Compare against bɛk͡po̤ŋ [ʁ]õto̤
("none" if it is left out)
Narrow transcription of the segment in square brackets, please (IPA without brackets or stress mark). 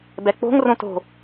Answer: r